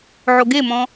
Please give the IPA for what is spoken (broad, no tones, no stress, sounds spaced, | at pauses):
ʕ o ɡ e m ɔ̃